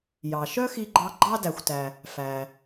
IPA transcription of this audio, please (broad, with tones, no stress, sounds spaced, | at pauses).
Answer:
j ɑ˩ ʃ œ˥ x i˧ ɡ͡ǃ ɑ˧ ɡ͡ǃ ɑ˧ d æ˩ xʷ t æ˩ | f æ˩